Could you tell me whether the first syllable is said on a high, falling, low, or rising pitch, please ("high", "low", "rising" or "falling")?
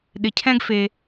low